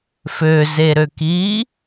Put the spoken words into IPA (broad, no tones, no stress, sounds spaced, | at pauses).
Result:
f ø z e ɾ ø k iː